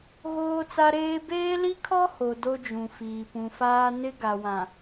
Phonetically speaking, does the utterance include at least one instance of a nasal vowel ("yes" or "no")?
yes